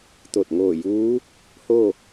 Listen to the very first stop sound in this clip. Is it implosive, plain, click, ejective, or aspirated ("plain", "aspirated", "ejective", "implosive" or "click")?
plain